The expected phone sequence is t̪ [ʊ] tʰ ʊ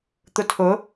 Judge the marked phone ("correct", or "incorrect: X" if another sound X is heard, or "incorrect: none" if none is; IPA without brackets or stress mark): correct